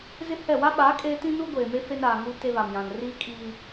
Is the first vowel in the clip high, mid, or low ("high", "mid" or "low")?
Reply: high